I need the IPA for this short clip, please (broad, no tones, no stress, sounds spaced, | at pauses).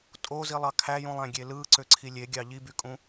tʼ o z i lˠ ɑ kʰ æ j ũ lˠ æ̃ ɡʲ e l ɯ ǀ ø ǀʰ i lʲ e ɡʲ ɑ ʎ i b y kʼ ũ